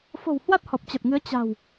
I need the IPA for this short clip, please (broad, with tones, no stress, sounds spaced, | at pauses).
f o̤˨˩ w h w a˦˥ t̚ h ɔ˨˩ p̚ t͡ɕ ə˨˩ t̚ ŋ ɨ˨˦ ə̯ t͡ɕ a̤˨˩ w